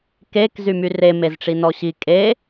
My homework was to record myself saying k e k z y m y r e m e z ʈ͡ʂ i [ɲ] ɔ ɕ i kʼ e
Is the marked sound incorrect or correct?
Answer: incorrect